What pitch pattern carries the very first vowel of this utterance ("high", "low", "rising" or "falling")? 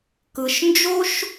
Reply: low